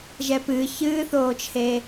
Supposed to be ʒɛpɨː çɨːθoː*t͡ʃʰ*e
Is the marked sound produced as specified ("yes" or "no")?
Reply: yes